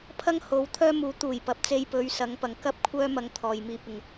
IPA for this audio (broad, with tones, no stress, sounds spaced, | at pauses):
pʰ ɐ˥ ŋ h o˨˧ w t̪ʰ œː˥ m uː˨˧ t̪ uː˨˩ j p ɐ˨ p̚ t͡s e˧ j p ɵ˨˧ ɥ s ɐ˨˧ ŋ p ɐ˨ ŋ k ɐ˥ p̚ kʷʰ œː˥ m ɐ˧ ŋ t̪ʰ ɔː˨ j m iː˧ p̚ ɪ˨ ŋ